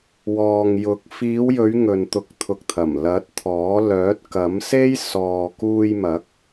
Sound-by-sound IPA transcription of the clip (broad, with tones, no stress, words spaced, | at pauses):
wɔː˨ŋjʊ˨˥k̚ fiː˨˧wjɵ˨˧ɥ ŋɵ˨nt̪ʊ˨˥k̚t̪ʰʊ˨k̚t̪ʰɐ˨˩m lɐ˨˥t̚ t̪ʰɔː˨˥ lœː˨˥t̚kɐ˨˥mse˥j sɔː˨kuː˧jmɐ˨˥k̚